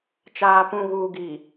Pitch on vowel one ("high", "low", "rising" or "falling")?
low